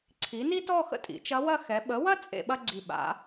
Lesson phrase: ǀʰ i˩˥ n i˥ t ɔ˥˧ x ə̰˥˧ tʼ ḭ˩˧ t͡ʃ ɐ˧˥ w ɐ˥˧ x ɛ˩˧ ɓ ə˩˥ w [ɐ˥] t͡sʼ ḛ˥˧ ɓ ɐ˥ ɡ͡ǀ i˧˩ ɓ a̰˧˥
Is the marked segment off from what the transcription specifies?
no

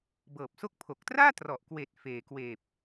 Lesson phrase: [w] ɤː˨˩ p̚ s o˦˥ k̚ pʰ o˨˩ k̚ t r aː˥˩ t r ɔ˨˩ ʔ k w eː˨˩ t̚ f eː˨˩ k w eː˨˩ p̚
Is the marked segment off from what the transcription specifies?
yes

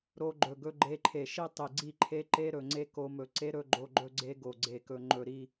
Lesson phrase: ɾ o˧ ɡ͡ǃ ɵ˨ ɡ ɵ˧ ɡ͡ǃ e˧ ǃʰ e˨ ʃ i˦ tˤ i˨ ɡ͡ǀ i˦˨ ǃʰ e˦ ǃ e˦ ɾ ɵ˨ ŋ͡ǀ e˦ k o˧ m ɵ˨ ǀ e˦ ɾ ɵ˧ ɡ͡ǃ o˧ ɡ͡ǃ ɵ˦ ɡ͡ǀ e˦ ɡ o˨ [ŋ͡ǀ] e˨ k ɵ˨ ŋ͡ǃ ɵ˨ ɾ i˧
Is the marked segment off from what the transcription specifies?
yes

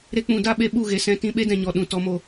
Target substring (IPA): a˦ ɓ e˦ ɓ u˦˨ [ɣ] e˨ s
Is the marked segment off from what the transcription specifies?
no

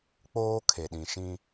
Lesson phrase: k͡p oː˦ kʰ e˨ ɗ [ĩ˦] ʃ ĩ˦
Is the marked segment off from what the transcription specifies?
yes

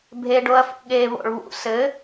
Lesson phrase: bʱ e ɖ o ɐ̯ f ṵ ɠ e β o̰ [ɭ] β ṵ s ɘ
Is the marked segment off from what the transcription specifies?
no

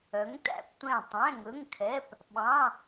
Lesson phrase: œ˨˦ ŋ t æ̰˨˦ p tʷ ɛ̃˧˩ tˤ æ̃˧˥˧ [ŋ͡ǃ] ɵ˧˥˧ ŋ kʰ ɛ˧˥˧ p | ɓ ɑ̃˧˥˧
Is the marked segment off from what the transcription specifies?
yes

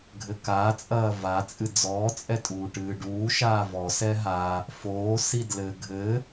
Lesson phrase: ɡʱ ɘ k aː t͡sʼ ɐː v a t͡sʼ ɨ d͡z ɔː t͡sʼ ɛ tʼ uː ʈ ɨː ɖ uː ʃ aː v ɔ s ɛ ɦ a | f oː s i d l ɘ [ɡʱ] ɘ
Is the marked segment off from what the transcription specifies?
no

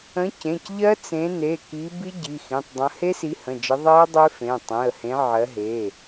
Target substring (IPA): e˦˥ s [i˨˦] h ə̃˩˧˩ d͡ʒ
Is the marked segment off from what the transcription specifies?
no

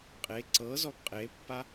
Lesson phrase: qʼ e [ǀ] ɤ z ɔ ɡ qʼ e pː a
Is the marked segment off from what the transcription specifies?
no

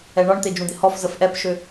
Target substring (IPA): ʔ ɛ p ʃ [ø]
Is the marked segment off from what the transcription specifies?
no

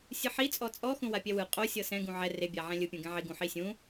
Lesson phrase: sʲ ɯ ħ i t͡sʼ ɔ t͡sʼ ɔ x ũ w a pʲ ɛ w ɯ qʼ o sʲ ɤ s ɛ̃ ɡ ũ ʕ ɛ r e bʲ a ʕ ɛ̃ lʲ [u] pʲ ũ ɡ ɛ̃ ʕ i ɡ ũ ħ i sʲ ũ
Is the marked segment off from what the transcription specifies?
yes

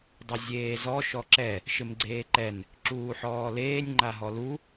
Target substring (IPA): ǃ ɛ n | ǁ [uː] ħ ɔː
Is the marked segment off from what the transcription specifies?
no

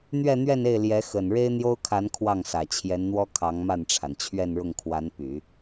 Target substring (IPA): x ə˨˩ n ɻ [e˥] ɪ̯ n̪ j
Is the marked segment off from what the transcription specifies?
no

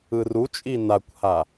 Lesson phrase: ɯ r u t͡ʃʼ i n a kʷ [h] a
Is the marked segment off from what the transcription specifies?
no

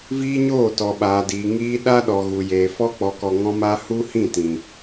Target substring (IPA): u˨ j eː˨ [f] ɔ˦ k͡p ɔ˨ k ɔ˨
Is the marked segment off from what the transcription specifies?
no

